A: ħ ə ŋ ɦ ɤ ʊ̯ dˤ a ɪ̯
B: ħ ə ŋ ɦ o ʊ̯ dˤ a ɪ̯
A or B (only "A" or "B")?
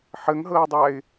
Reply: A